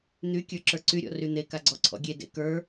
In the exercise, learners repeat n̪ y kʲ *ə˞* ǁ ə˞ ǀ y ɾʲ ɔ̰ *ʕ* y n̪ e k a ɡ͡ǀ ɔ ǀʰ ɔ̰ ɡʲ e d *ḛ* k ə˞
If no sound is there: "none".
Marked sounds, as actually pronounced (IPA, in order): ə˞, r, ḛ

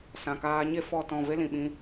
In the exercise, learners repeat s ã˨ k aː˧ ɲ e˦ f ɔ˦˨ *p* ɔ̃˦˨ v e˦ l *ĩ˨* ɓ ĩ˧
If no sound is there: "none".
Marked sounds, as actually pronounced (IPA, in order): t, ĩ˨

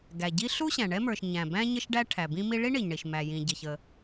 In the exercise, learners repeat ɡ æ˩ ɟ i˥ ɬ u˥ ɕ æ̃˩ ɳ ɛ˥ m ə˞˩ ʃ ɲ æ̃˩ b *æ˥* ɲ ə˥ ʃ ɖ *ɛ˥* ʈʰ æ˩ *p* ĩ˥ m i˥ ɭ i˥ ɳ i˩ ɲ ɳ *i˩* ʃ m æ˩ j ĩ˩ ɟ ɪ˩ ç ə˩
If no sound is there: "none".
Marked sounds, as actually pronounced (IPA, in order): æ̃˥, æ˥, b, i˩

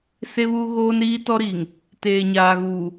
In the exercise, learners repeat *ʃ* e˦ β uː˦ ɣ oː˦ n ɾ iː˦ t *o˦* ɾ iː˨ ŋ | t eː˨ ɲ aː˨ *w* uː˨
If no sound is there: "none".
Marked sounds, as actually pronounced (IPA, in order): s, ɔ˦, ɣ

